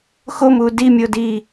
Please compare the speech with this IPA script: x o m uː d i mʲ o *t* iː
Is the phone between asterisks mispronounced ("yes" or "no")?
yes